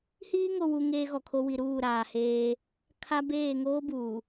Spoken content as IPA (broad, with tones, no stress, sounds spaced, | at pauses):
h iː˦ ŋ o˨ w u˨ ŋ eː˦ ɣ ɔ˨ kʰ o˦ w i˨ ɾ uː˦˨ ɾ aː˨ h eː˦ | kʰ a˦ b eː˦˨ ŋ oː˦ b uː˨